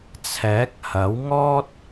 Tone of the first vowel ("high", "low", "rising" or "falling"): rising